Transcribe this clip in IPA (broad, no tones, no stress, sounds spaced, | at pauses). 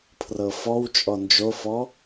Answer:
pʰ r ɤ f ɔ w t͡ʃʼ ɔ n d͡ʒ o f ɔ